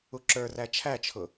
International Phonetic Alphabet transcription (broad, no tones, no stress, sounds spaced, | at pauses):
u ǁ ə˞ r æ t͡ʃʰ æ t͡ʃʰ ʊ